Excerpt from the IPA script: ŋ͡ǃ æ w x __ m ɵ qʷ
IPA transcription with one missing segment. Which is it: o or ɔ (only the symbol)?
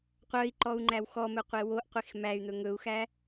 ɔ